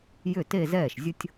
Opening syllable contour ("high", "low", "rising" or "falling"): falling